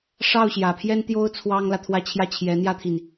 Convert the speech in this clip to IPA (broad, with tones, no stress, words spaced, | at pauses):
ʂɑ˥˩ʊ̯ɕjä˨˩pʰjɛ˥nt̪jo˥ʊ̯ t͡sʰwɑ˥ŋlä˨ t̪ʰwä˥˧t͡ɕʰjä˥˩ t͡ɕʰjɛ˧˥n̪jä˥t̪ʰi˨n